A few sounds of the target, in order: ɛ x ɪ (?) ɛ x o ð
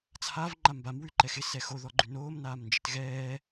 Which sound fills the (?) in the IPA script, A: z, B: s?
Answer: B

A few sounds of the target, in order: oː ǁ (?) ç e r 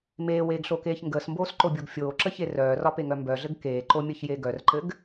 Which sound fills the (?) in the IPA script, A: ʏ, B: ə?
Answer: B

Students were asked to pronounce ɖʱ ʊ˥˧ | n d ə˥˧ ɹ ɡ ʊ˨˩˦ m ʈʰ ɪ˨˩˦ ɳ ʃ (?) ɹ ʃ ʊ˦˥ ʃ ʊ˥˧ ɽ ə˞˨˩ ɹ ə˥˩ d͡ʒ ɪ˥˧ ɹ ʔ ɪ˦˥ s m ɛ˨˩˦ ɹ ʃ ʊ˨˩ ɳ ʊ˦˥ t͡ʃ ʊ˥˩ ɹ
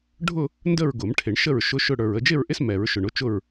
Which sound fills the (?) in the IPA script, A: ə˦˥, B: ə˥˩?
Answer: B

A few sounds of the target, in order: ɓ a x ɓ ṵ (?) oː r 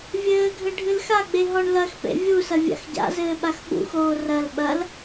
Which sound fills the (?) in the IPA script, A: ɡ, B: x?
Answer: B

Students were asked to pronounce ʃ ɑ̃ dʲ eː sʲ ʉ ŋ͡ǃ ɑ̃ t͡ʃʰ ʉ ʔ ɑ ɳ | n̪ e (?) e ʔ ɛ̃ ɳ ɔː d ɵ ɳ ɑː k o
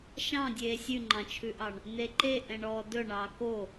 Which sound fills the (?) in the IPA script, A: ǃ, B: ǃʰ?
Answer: A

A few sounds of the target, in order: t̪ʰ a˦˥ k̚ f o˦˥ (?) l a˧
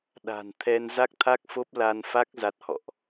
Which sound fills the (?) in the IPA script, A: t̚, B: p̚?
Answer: B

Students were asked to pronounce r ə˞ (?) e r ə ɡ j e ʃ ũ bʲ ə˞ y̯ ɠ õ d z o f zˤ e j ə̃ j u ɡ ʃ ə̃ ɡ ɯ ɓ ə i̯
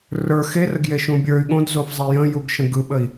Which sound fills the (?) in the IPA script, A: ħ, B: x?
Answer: B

